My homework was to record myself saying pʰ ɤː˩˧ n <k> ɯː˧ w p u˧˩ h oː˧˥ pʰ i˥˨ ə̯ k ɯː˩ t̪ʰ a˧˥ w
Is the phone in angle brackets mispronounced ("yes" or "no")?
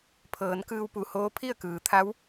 no